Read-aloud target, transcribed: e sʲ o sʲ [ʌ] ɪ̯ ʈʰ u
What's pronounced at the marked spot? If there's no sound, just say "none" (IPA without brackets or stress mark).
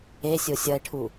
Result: ʌ